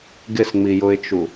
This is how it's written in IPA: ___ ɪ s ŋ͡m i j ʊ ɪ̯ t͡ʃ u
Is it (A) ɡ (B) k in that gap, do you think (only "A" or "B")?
A